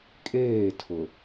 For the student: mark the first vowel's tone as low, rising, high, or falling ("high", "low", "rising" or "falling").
falling